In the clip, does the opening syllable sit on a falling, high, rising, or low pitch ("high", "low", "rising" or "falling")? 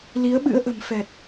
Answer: rising